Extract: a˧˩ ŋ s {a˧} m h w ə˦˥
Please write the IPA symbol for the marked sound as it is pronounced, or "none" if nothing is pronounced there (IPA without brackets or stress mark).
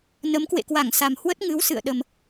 a˨˩